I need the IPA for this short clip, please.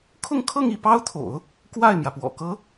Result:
kʰʊ˥˧ŋkʰɤ˥˧ŋi˥˩ pɑ˥ʊ̯t̪ʰo̰˨˩˦ʊ̯ | kwa˥˩ɪ̯mjä˩pwɔ̰˨˩kɤ˧˥

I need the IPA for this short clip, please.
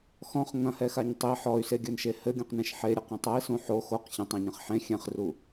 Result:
xɔ̃χ ŋɐ̃hɛxaɲ tˤi ħɔy̯seɡʲɘnʃe hɘɡʲũqnẽʃ ħeɾʲɘqɐ̃ tˤɐi̯sũ ħo xoq çɐ̃tˤẽɲɐ̃χ ħẽ xʲɛ̃χru

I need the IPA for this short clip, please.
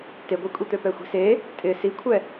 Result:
teɡʷekʷʼit̪ø pɛxʷi̤se | tʼɪ sikʷʰɛ

